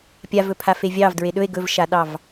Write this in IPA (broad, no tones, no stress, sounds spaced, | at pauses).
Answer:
pʲ a v ɵ pʰ a f e vʲ ɑ v d ɹ e ɗ ɵ e̯ ɡ ɵ v ʃ a ɗ ɑ v